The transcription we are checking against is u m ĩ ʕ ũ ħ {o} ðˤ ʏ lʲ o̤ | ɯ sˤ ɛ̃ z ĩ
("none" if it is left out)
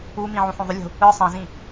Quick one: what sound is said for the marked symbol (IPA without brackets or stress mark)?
õ